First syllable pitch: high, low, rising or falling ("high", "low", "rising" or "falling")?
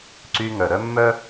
high